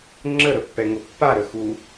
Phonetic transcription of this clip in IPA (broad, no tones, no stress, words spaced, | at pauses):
ŋ͡ǁəɾəpːɛŋʊ pːaɾəxu